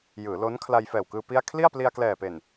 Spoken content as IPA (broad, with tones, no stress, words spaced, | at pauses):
jɯː˩˦lo˦˥n kʰla˧jfɛː˨˩wkɯː˧ pi˥˩a̯ kʰli˥˩a̯pli˧a̯klɛː˨˩pe˨˩n